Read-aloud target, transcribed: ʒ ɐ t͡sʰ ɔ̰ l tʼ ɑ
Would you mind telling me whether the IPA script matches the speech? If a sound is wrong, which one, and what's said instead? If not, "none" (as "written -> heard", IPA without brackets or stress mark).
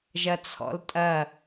ɑ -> ɐ